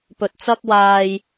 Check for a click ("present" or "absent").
absent